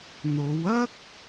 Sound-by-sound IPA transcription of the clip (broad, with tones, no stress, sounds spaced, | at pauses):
n̪ o˨˧ w ɐ˥ k̚